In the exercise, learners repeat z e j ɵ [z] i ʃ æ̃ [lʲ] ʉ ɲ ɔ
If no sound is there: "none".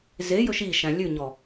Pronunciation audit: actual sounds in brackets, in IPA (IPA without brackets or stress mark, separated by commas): ʃ, lʲ